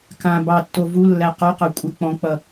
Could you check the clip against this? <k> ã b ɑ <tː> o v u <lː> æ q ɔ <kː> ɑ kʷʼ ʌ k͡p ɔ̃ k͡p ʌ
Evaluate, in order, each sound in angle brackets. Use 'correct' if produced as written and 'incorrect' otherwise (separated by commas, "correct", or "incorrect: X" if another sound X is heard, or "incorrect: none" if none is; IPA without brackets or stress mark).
correct, correct, correct, incorrect: q